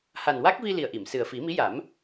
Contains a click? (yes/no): no